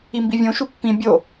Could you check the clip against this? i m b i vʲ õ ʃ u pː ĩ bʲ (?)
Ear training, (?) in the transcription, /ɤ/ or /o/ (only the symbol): o